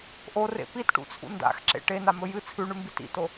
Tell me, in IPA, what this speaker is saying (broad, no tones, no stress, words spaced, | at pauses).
ʔorḛ pitʈṵt͡sʰṵ nda̰xǁḛ ʈenamɵ jɨ t͡sʰʉɳʉmbit ḭto